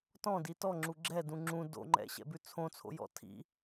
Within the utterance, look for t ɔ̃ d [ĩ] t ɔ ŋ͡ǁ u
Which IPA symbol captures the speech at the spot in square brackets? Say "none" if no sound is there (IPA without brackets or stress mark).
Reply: i